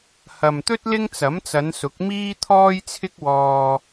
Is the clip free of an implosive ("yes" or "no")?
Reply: yes